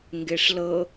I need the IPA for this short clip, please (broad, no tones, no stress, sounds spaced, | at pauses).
ŋ ɡ e ʂ l ɤ